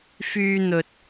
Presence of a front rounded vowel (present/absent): present